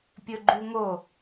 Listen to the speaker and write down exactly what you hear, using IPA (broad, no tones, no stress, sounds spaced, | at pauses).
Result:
pʲ ɵ ɡ͡ǃ ʉ ŋ o